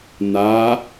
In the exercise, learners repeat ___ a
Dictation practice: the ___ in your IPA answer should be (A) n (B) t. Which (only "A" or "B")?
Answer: A